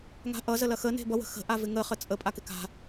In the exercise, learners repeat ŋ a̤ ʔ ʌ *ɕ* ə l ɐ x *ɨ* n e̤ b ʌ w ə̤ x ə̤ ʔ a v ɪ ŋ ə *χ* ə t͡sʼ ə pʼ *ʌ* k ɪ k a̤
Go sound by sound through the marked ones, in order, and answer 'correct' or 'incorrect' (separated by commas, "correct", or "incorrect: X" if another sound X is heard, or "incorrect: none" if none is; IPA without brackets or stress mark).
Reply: incorrect: z, incorrect: ə, correct, incorrect: a